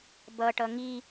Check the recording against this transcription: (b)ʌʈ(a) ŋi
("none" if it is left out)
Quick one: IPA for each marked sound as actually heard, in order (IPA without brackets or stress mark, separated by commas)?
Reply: b, ʌ